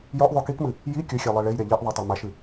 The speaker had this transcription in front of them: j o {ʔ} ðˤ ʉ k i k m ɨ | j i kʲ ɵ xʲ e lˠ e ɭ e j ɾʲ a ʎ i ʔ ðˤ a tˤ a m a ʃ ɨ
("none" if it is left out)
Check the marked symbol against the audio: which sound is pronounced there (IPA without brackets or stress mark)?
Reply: ʔ